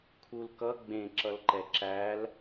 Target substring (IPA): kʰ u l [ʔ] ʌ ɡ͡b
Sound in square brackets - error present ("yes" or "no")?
yes